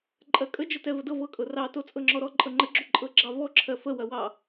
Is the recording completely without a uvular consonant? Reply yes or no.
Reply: yes